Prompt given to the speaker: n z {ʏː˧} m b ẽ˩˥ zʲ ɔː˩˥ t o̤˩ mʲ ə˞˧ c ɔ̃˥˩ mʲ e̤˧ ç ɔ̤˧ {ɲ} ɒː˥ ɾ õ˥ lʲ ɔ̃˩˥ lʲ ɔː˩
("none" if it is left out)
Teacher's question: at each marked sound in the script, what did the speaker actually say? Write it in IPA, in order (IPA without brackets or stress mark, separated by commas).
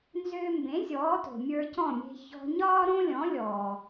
ʏː˧, ɲ